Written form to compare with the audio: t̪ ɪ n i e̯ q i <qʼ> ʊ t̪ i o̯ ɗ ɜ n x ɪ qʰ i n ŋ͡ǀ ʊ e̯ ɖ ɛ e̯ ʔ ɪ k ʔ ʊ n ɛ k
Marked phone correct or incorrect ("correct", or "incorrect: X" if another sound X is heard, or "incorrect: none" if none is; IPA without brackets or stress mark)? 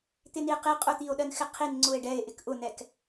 correct